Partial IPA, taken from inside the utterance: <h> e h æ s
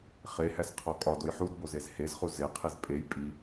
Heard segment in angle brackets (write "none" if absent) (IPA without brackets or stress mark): χ